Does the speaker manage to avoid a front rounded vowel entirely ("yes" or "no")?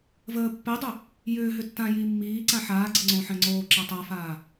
no